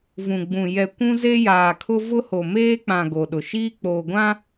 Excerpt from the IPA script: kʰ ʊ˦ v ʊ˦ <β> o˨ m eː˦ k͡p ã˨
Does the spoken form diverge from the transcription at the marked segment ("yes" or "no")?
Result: yes